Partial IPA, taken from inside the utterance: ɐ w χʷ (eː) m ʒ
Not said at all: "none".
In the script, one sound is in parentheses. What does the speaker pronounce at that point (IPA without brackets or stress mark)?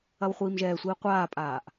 iː